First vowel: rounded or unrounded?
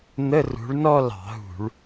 unrounded